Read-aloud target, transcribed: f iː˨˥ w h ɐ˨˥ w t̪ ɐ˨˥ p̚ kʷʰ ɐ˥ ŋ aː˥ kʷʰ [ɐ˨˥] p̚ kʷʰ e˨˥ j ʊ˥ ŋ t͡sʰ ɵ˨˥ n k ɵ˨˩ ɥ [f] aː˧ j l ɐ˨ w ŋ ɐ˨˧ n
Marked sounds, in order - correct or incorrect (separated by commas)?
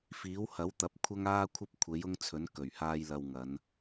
incorrect, incorrect